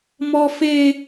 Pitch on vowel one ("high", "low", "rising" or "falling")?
high